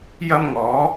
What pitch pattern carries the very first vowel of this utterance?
high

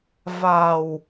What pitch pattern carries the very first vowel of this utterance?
low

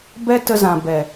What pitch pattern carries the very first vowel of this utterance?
high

